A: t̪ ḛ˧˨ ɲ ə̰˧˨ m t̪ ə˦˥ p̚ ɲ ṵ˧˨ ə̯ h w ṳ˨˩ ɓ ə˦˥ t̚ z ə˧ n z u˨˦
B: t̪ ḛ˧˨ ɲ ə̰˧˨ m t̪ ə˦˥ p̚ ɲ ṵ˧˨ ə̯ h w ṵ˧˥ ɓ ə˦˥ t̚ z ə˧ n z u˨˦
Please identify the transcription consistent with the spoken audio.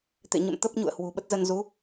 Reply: A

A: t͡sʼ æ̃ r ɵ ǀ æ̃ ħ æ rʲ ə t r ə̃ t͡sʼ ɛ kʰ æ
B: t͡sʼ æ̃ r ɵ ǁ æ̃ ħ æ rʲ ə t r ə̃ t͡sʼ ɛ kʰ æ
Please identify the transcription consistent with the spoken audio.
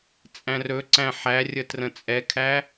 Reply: A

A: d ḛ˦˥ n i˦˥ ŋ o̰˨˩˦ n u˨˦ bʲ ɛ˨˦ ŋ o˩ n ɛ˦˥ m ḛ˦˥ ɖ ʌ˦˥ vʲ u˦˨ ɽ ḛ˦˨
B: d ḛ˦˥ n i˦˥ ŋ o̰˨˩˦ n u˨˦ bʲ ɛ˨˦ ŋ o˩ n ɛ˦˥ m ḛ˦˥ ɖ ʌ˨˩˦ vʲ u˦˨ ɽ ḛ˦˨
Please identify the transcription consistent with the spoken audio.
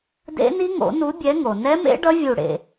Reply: A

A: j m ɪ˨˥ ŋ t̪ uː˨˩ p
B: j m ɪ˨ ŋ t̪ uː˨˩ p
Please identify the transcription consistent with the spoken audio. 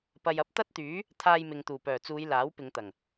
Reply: B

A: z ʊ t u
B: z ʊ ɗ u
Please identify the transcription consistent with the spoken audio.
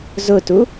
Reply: A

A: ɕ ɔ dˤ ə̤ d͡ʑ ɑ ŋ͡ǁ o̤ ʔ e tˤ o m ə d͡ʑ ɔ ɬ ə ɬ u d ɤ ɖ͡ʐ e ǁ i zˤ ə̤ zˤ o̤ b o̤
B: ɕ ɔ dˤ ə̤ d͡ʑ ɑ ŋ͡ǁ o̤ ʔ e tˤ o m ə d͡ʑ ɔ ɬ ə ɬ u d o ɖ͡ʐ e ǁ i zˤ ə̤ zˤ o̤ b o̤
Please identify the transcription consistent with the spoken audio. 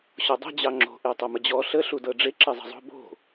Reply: A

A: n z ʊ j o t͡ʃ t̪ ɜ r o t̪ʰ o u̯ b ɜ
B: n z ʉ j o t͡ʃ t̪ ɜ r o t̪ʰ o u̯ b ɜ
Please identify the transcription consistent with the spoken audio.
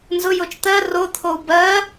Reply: A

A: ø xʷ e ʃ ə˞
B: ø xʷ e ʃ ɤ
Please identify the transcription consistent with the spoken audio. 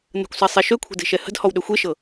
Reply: B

